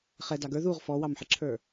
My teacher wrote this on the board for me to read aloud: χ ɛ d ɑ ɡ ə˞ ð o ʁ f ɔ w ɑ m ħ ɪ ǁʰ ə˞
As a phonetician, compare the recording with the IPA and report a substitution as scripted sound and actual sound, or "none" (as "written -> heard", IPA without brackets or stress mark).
o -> u